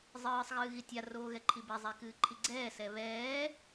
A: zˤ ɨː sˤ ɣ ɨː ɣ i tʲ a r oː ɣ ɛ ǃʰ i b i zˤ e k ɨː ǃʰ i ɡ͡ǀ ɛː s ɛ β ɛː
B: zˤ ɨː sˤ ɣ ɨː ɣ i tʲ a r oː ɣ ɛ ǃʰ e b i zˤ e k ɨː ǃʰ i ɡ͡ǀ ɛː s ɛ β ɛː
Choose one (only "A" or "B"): A